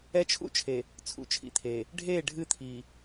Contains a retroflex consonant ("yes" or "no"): yes